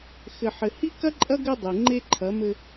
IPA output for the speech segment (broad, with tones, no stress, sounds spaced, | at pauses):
x ɘ˨ ħ ɘ˨ h i˦ k ɐ˦ ǃʼ ɐ˦ ɡ ɘ˦ dˤ e˨ ŋ͡ǃ e˦ ǃʰ ɐ˨˦ m ɘ˦